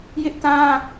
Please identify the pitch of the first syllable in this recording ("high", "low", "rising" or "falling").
high